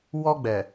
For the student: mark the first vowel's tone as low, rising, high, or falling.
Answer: high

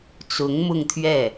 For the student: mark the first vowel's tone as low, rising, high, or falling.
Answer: rising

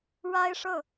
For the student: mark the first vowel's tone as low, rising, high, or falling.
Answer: high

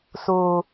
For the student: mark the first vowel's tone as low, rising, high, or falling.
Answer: low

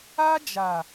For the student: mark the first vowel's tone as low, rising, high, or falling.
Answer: high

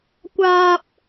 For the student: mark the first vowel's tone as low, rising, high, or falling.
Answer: high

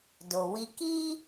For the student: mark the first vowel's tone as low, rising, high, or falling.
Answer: low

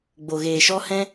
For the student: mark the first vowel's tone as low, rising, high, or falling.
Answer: low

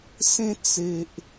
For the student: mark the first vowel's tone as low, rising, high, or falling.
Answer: high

